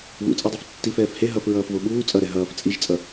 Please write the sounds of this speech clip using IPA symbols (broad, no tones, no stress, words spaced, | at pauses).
βṵt͡sʼedˤef tːif ɛːfhe ɦʌf ɹʌːfvoɓuː t͡sʼʌɾɛ ɦʌːf t͡sʼiʒt͡sʼʌ